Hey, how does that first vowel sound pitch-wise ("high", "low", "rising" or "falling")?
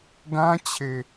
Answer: high